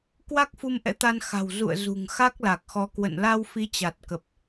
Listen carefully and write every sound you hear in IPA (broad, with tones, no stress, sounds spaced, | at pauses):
k w a˦˥ k̚ f u˧ m ʔ ɛ̰˧˥ t̪ a˧ n x a̤˨˩ w z ṵ˧˨ ə̯ z ṳ˨˩ ŋ x a˦˥ k̚ l a˨˩ k̚ x ɔ˨˦ k w ə̰˧˨ n l a˧ w f i˨˦ t͡ɕ a˨˩ t̚ k ə˨˩ p̚